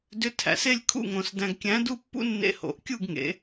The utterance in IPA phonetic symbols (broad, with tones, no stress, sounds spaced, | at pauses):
d ʏ˧˥ tʰ æ̰˩˧ s e˥˧ lʲ kʰ ṵ˥˧ ŋ õ˧ s d æ̃˧ ɡ kʲ æ̃˧˥ d u˥˧ pː ṵ˥ nː ḛ˧ h o̰˩˧ ʔ kʲ u˥˧ ɡ ŋ ḛ˩˧